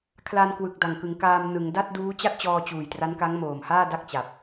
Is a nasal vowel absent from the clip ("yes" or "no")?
yes